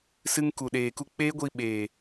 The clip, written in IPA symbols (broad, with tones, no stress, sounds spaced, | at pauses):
s ɨ˧ ŋ k u˨ ɗ eː˨ k u˧ k͡p e˦ ɡʷ i˧ ɓ eː˨